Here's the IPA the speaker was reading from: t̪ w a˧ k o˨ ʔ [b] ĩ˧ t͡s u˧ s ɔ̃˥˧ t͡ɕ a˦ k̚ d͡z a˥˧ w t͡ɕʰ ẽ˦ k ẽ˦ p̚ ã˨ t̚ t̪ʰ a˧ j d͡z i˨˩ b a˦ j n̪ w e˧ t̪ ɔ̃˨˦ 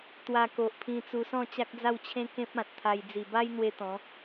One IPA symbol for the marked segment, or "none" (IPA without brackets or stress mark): pʰ